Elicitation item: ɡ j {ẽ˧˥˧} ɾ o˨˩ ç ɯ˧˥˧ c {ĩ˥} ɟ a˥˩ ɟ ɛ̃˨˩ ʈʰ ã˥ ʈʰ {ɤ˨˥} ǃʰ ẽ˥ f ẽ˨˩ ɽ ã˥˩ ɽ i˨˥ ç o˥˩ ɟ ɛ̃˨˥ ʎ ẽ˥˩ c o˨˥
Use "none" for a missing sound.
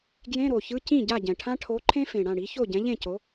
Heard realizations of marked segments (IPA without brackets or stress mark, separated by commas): ẽ˧˥˧, ĩ˥˩, o˨˥